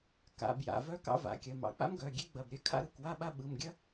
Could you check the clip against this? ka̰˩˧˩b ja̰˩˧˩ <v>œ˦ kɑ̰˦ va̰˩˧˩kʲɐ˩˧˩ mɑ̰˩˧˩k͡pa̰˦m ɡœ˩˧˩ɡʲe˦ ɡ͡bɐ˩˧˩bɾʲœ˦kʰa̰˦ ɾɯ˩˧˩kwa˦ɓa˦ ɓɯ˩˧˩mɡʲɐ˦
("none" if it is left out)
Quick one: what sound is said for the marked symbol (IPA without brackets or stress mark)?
v